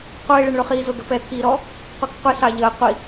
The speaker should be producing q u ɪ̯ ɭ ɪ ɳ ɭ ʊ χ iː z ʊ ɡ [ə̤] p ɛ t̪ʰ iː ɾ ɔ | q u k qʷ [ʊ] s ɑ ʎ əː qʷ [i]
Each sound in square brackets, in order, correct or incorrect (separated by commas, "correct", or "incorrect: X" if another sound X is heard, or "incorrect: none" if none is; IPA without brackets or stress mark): correct, incorrect: ə, correct